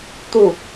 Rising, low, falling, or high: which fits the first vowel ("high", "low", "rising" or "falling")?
falling